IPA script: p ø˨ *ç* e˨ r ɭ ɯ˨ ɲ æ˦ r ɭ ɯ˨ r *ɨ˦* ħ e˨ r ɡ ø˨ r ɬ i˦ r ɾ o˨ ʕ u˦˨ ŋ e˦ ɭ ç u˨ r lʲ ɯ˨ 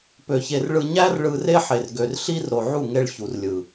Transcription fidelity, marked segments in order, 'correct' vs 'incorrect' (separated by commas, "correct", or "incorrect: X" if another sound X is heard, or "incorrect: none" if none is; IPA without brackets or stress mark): correct, incorrect: e˦